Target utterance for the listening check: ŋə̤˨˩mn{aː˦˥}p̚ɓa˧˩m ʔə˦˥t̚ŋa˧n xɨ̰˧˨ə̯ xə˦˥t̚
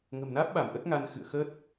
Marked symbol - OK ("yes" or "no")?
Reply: yes